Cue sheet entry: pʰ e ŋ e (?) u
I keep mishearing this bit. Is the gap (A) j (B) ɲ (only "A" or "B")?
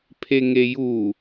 A